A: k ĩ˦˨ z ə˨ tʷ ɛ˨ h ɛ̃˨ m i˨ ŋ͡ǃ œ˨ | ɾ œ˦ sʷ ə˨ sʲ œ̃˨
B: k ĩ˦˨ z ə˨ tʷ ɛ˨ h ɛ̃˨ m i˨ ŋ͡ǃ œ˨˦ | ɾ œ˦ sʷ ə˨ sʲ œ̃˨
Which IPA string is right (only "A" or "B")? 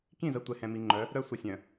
B